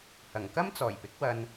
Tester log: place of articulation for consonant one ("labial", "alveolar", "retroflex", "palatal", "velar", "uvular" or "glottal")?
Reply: glottal